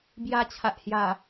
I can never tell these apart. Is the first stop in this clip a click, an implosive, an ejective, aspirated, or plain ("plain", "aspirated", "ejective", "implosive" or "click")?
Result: plain